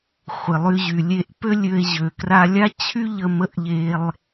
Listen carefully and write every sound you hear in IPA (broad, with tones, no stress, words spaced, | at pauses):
χʷɪ˩lˠy˧ʑy˩ lʲe˧ʔpø˥lʲø˧e̯ ʑø˩kra˧ lʲa˥ t͡ɕʰy˥ʎə˧mə˧ʔʎe˧lˠ